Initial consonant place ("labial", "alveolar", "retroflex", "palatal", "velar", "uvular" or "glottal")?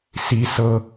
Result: alveolar